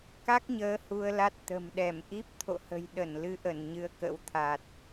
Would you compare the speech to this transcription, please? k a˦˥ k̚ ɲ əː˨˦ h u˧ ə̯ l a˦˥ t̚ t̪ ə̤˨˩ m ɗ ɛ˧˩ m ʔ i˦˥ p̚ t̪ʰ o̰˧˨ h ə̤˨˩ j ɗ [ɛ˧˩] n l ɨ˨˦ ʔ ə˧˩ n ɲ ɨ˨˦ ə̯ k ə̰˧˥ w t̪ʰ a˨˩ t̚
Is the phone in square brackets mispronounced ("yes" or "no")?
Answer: yes